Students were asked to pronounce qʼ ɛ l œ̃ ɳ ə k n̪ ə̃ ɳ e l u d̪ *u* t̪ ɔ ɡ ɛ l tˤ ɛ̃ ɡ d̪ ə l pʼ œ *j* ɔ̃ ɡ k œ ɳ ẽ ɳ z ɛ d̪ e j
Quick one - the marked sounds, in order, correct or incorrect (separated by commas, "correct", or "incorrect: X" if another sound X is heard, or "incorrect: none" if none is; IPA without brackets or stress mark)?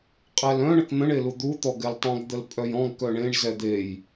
correct, correct